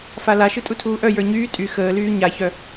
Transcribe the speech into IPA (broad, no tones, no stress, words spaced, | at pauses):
falaʃɯ tʼutʰuːʔœ jə˞ɲyː tʼy xəːlyː ɲaçœ